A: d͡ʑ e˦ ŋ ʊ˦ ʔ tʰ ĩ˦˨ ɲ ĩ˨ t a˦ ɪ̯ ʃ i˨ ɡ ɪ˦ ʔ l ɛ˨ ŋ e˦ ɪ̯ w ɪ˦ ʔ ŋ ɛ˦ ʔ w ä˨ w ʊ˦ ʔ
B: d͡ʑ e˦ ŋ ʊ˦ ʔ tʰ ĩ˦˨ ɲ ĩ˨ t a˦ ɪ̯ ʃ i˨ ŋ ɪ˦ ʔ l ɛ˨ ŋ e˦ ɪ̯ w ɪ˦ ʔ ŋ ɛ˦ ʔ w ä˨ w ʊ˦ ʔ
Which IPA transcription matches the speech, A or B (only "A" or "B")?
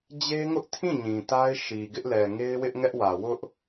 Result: A